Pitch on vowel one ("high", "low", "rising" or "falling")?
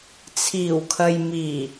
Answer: low